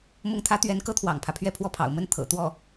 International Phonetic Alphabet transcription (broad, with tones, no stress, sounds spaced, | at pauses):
m ʊ˥˩ ŋ t̪ʰ ä˥ t̪ ɥ ɛ˧˥ n k ɤ˥ t̪ʰ w ɑ̰˨˩ ŋ pʰ ä˦ pʰ ɥ ɛ˥˧ pʰ w ɔ˥˩ pʰ ɑ̰˨˩ ʊ̯ m ə˥˩ n t̪ʰ ɤ̰˨˩ t̪ w ɔ˥˩